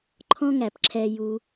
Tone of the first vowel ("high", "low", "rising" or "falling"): high